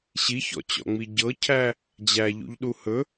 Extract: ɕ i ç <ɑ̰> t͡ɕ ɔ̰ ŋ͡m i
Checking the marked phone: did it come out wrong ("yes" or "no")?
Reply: yes